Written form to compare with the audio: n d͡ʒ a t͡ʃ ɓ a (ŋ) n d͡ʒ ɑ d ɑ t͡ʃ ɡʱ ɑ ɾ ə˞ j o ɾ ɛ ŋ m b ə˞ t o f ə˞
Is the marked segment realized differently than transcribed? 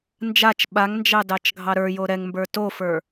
no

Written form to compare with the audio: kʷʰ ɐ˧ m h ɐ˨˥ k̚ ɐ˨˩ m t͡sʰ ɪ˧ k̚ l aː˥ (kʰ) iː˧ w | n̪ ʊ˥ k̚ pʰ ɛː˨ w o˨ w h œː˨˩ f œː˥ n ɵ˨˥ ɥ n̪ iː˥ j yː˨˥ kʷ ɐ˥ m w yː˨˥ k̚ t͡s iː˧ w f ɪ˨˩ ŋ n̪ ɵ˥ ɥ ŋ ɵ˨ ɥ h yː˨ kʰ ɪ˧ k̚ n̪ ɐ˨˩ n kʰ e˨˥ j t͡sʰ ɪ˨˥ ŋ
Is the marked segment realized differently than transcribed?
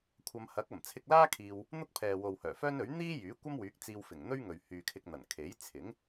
no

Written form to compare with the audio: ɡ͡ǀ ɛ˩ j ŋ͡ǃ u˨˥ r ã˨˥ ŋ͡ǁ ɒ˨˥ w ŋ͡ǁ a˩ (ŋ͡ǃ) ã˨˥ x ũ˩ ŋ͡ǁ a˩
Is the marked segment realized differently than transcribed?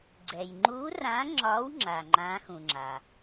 no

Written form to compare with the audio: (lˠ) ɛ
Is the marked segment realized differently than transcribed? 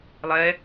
no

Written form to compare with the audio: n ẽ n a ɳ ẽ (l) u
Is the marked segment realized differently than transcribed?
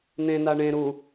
yes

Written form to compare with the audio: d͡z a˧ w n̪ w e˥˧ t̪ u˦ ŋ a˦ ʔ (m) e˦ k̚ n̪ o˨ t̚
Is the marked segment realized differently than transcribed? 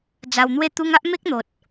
no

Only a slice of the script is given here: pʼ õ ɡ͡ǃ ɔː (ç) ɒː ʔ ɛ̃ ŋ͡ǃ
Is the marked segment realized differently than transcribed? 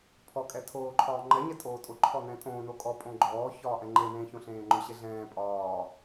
no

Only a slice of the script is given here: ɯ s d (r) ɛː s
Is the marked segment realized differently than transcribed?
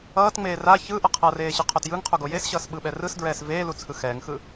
yes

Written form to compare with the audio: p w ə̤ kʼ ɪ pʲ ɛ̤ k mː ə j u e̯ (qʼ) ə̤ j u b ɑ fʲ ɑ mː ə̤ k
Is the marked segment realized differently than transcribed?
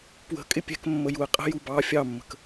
no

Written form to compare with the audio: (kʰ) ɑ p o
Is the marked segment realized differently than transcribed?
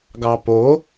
yes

